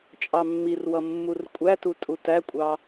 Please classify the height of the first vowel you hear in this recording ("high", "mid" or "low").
low